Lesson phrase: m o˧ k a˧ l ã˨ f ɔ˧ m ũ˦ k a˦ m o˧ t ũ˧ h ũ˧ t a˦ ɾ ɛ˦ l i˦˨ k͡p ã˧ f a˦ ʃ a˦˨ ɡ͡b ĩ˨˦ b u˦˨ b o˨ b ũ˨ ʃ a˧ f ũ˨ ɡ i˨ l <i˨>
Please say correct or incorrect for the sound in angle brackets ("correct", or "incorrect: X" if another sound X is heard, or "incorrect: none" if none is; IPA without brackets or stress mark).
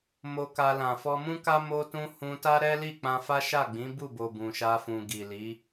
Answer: incorrect: i˨˦